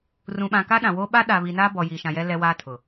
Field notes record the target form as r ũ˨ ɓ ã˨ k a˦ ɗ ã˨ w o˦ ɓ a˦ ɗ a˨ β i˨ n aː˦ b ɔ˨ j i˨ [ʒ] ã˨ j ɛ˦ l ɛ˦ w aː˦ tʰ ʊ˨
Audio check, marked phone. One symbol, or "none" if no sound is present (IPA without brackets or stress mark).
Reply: ʃ